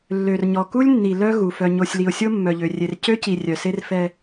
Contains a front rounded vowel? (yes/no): yes